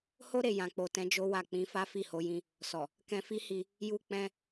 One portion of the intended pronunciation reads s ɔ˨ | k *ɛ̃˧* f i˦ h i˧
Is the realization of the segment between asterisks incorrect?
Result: no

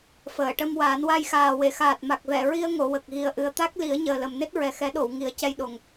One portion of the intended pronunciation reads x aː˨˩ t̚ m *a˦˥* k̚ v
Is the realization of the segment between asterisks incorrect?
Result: yes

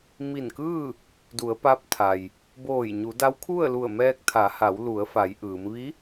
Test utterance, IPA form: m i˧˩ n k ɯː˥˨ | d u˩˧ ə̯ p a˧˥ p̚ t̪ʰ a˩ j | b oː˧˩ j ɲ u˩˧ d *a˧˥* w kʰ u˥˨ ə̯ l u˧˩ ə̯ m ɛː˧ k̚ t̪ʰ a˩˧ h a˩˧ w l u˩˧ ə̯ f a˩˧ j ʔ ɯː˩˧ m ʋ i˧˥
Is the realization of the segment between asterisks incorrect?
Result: no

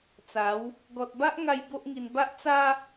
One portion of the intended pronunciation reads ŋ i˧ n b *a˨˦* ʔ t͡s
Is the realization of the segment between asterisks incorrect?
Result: yes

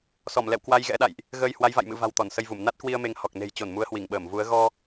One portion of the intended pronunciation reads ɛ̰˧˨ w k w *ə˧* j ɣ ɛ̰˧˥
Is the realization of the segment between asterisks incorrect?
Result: yes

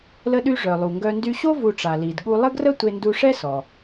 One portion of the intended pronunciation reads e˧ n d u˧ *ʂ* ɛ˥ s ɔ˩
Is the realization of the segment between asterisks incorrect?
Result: no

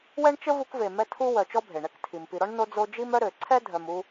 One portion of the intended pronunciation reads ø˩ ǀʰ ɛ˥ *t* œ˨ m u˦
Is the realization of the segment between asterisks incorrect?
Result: yes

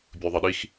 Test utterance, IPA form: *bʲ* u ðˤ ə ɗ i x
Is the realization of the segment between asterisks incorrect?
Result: no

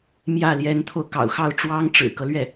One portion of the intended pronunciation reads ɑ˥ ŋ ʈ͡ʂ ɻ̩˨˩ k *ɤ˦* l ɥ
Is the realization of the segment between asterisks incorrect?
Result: no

